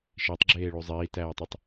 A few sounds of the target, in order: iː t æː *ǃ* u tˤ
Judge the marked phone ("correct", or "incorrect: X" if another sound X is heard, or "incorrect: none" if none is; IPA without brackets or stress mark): incorrect: tˤ